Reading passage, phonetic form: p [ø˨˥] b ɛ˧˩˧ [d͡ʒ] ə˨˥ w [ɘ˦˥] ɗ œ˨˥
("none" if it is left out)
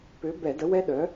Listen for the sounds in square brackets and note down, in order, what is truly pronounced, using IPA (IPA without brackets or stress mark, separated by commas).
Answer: ø˨˥, d, ɛ˦˥